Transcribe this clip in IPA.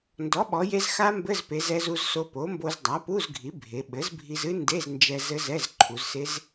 n d ɔ˩˥ ɓ ɔ˩˧ j e˧ z x a˦˥ m b ɘ˧˥˧ z p e˩˧ z ɛ˧ z u˧ z s o˧ p o˩˥ m b o˧ z dˤ a˩˥ p u˧˥˧ z ɡʱ i˩˥ bʱ e˩˧ ɓ ɘ˩˥ z bʱ i˧ z ɨ˦˥ n d e˧˥˧ z n d͡ʒ ɛ˧ z ɘ˦˥ z ɛ˧˥˧ z ǃʰ u˩˧ z s e˦˥ z

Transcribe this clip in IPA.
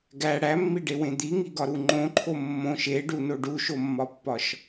ɡ æ ɽ æ mː i ɖ e w ẽ d̪ i ŋ i ɡ ɒ ɾ u ŋ͡ǃ õ ǃʰ o mː õ ʃ e ɖ u n o ɖ u ʃ o mː ɒ pː ɒ ʃ

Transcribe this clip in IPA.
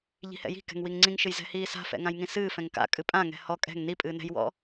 ʎ i̤ h ɛ̰ j i̤ k ɛ̤ ŋ w i ŋ ŋ͡ǀ ĩ ŋ ʃ ɨ j z ɛ̤ h iː s a̤ f ɛ̰ ŋ ã j ŋ ĩ s ɨː f ɛ̃ ŋ k a̰ kʼ ɨ pʼ ã ŋ ɛ̤ h ɔ kʼ ɛ̤ ŋ n i pʼ ɨː n ɛ̤ j w ɔ̰

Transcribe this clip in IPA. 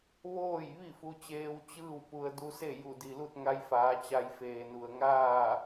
ʋ oː˥˨ j ʋ i˥˨ f u˧ t͡ɕ eː˧ w t͡ɕ ɯː˥˨ w p u˧ ə̯ d u˧ s e˥˨ j u˧˩ d i˩ l u˥˨ t̚ ŋ a˧ j f aː˩˧ t͡ɕ a˧ j f eː˩ n u˩ ə̯ ŋ aː˥˨

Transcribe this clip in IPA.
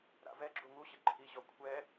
ɾ a̰ v ɛ ɡ͡ǁ u ŋ u ɕ ɪ ǃʰ i ɕ ɔ kʷʰ ɛ

